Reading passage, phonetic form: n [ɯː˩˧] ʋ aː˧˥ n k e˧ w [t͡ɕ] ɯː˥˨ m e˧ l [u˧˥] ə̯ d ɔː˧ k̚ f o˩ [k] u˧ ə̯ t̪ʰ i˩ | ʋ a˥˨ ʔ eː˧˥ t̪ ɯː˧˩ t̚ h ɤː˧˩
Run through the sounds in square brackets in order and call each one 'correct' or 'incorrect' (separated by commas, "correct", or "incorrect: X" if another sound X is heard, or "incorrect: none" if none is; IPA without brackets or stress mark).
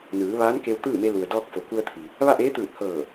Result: correct, incorrect: t̪, incorrect: u˩, correct